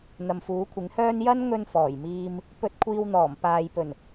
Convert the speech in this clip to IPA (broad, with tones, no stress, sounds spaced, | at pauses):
n̪ ɐ˨ m f uː˨˥ kʷʰ ɪ˨˥ ŋ h œː˥ n j ɐ˥ n ŋ ɵ˧ n f ɔː˨˩ j m iː˧ m | p ɵ˧ t̚ kʷʰ iː˧ w n̪ ɔː˨˩ m p aː˨ j p ɵ˨˩ n